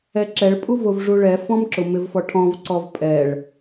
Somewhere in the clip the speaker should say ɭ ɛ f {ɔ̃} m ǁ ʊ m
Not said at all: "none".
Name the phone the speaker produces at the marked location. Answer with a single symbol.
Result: ɔ̃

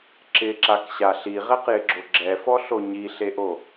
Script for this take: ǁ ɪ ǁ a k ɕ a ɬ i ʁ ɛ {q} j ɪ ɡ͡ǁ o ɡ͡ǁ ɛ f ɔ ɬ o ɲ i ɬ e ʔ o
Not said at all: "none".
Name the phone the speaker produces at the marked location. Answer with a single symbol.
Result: q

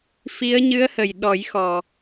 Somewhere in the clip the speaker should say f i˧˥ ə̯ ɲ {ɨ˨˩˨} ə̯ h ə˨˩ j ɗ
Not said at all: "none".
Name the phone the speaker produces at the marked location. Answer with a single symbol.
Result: ɨ˧˥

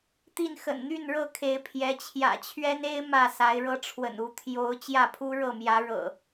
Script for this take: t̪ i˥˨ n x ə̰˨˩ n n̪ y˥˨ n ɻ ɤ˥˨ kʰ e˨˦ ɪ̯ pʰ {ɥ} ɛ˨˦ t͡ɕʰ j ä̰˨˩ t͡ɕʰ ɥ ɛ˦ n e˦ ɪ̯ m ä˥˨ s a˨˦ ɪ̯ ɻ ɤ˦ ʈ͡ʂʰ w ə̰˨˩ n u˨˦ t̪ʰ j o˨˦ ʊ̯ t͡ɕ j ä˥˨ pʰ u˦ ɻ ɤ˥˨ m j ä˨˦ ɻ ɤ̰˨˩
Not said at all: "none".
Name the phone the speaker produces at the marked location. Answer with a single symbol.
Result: j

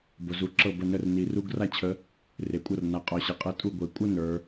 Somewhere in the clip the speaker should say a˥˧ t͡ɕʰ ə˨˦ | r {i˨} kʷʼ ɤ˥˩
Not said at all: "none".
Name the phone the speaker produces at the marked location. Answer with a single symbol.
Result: e˨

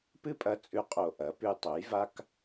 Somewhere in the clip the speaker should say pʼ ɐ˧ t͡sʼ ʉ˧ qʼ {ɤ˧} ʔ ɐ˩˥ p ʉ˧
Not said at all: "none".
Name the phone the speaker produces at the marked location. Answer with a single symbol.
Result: o˧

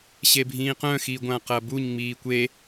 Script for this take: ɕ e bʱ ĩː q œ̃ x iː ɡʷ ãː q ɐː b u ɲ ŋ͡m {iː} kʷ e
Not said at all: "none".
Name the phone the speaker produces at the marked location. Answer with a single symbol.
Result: iː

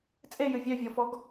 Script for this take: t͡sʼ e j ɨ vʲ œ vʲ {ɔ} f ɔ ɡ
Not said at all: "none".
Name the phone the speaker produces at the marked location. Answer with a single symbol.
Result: ɔ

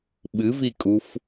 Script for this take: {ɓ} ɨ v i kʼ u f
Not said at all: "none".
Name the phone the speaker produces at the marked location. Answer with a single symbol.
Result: ɓ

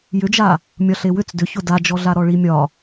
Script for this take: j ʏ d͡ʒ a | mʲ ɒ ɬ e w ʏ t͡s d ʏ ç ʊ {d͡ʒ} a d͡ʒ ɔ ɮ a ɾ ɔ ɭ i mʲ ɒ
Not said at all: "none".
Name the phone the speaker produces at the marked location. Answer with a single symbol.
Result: d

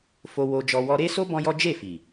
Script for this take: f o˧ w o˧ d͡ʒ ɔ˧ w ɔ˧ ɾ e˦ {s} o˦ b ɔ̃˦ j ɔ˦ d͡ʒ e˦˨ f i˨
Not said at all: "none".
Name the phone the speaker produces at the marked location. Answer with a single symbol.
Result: s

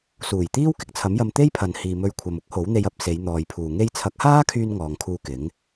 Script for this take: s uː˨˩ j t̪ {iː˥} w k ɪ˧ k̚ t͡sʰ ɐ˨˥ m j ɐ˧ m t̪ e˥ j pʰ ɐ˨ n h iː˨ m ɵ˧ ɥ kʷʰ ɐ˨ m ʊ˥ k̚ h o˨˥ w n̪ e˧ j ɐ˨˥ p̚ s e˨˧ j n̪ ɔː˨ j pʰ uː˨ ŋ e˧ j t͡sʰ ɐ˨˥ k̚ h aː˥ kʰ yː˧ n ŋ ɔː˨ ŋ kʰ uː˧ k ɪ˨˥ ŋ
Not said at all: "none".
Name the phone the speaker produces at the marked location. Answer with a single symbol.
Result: iː˥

